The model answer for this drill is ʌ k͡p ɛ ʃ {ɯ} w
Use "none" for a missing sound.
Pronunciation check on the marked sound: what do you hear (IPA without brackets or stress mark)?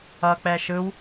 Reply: ɯ